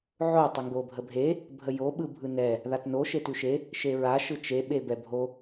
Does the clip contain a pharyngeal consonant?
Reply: yes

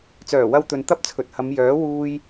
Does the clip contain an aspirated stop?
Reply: yes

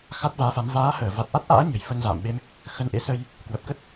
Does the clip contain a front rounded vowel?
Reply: no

